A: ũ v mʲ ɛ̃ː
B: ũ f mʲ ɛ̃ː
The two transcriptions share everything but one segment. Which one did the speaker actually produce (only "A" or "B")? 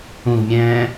A